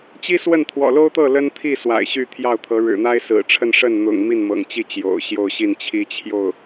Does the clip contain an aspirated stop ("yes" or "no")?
yes